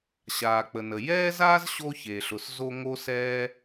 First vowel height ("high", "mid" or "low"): low